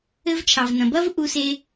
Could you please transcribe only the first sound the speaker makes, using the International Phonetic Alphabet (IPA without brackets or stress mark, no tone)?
ɘ